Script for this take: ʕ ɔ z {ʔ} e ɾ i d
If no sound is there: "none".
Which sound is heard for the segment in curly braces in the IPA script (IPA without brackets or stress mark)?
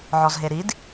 ɦ